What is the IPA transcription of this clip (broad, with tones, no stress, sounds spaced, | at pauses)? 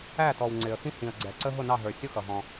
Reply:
æ˦˨ t ɔ˨ w ŋ͡ǀ ɪ˨ ə̯ x ĩ˦ h ĩ˨ ə̯ ɡ͡ǀ ɛ˨ ǀ ə˦ ɦ ʊ˦˨ n ɑ˦˨ ɦ ə˞˨ sʲ ʊ˦ x ʌ˨ ɦ ɔ̃˦